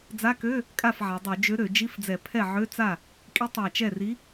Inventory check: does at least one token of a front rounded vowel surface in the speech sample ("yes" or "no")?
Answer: yes